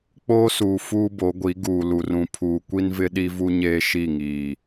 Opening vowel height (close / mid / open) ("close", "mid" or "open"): mid